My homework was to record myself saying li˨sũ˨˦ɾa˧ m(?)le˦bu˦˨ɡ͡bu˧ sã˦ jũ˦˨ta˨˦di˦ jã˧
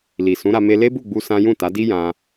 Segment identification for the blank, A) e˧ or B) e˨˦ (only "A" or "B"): A